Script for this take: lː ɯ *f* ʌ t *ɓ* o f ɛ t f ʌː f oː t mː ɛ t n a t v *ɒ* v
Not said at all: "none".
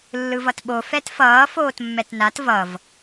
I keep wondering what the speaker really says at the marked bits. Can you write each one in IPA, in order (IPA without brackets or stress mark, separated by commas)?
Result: v, ɓ, ʌ